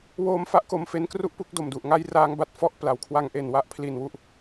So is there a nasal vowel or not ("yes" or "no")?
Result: no